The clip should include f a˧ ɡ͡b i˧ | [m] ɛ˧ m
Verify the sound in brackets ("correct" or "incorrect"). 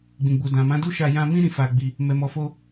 correct